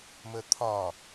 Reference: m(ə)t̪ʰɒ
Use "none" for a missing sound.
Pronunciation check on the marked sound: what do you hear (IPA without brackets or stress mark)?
ə